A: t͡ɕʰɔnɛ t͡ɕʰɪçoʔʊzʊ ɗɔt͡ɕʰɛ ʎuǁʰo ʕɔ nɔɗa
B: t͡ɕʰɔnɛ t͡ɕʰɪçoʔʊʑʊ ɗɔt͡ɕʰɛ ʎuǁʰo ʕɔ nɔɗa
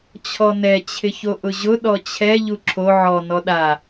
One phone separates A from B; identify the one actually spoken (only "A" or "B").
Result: B